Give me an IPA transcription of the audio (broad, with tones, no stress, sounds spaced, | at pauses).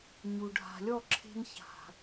ɲ u˨ ɖʱ a̤˨ lʲ ɔ˦˨ ǁʰ e̤˧ n ç a̤˨